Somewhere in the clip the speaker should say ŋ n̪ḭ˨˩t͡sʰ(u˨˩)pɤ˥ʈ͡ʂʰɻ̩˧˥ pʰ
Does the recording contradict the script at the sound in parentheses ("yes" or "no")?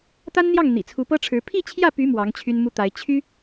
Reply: yes